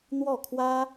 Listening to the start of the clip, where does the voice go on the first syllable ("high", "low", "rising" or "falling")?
falling